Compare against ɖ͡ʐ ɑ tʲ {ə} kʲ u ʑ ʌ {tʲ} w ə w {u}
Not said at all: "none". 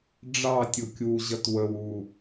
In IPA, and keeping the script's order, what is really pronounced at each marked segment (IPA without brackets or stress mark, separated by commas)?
ʊ, t, u